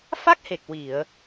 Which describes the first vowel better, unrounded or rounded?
unrounded